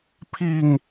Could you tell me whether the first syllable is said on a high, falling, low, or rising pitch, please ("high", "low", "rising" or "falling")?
low